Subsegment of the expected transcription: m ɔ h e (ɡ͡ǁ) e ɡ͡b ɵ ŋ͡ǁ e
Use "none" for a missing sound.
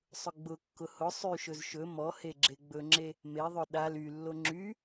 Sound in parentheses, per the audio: ɡ͡ǁ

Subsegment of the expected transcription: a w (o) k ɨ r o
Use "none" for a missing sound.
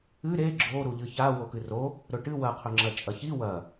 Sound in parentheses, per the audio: o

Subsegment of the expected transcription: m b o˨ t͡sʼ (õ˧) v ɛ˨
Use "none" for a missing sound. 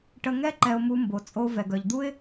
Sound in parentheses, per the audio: o˧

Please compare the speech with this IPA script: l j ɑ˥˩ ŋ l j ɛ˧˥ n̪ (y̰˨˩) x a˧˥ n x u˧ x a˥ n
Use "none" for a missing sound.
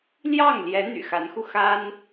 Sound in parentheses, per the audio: y̰˨˩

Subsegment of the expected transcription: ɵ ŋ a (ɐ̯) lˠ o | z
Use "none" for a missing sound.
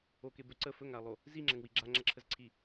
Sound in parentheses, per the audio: ɐ̯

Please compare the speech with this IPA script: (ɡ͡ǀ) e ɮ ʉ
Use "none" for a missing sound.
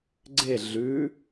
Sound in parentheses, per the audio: ɡ͡ǀ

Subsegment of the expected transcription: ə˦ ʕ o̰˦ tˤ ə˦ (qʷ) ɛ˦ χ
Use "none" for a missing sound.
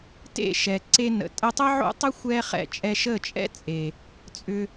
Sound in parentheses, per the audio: xʷ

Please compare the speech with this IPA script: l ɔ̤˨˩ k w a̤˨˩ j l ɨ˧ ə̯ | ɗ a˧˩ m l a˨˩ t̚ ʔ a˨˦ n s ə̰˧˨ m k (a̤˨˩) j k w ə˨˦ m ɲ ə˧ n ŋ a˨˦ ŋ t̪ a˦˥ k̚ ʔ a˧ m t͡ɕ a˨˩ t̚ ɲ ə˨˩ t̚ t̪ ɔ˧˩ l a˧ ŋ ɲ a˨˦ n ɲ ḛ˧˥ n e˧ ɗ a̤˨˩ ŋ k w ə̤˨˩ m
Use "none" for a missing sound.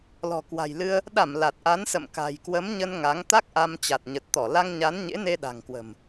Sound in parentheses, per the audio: a̤˨˩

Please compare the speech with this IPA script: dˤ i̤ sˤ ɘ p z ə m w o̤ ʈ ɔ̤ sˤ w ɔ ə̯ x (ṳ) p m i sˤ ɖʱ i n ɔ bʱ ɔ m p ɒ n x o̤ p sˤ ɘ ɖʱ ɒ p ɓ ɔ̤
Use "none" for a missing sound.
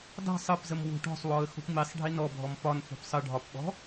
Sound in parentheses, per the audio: o̤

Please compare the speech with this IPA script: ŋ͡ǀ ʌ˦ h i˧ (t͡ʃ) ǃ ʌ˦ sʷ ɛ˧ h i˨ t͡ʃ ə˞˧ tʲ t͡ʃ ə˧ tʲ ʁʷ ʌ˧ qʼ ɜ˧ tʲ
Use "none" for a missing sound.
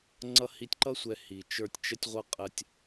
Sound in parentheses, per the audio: tʲ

